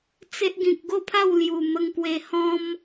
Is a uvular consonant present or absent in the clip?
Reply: absent